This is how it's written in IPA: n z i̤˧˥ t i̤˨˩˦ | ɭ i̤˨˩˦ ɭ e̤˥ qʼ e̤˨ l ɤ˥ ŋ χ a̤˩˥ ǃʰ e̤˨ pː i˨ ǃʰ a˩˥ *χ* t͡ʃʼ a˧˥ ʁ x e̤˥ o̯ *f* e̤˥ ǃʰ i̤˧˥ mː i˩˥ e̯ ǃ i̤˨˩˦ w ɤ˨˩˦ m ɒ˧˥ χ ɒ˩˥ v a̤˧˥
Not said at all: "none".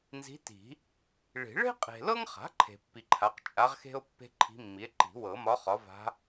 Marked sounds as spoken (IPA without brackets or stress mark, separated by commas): q, pː